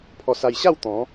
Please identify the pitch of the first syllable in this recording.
low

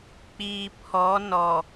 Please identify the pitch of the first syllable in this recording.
low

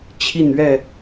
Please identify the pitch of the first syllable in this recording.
falling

